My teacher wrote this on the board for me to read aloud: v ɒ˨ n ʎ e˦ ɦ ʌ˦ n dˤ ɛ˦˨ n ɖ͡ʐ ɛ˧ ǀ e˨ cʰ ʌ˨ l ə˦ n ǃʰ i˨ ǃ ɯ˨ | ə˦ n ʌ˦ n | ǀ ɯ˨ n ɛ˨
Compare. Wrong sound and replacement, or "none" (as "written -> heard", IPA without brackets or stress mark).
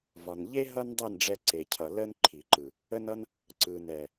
none